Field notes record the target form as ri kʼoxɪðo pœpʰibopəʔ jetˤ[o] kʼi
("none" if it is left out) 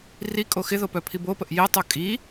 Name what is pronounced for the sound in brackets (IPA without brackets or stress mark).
o